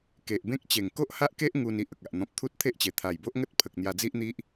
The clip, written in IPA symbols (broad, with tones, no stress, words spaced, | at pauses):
ke˨ʔbẽ˦k̚ t͡ɕe˨˩ŋko˦ʔha˦ʔke˦ʔ ŋu˧ni˨ʔ ə˨k̚a˨ʔ n̪ɔ̃˨p̚t̪ʰu˦t̚t̪ʰe˦ʔt͡ɕe˨˩ t̪ʰa˨˩jbo˦ʔŋə˦t̚pʰə˨k̚ n̪ja˧d͡zi˦ʔn̪i˦ʔ